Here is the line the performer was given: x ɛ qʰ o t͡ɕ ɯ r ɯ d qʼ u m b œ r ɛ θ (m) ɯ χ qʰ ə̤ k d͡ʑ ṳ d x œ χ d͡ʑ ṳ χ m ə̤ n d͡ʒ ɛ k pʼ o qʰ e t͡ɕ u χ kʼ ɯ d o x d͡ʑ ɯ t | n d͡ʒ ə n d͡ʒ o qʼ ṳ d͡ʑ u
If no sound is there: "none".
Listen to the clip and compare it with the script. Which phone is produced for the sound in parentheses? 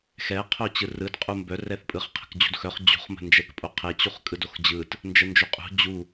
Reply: pʼ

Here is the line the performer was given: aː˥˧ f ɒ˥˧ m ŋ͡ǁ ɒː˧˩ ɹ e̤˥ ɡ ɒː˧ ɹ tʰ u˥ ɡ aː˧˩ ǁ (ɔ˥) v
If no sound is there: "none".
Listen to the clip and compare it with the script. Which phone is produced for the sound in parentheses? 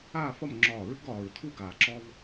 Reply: ɔ˥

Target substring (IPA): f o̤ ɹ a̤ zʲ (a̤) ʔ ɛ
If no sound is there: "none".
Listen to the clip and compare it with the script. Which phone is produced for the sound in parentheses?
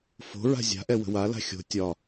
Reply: a̤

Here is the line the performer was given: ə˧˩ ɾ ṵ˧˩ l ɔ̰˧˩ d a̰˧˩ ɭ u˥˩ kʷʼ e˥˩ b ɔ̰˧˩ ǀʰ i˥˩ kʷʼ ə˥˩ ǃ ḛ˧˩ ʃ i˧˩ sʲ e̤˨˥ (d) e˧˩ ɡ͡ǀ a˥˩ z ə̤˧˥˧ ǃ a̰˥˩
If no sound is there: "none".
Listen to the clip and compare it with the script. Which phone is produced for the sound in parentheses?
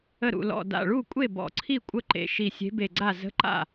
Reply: b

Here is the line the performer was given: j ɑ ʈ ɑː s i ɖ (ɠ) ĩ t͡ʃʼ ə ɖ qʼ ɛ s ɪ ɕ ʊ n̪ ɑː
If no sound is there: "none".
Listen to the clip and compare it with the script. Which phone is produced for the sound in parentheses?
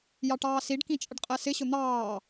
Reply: k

